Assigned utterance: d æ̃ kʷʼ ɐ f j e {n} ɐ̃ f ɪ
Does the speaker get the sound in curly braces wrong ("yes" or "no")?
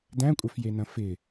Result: no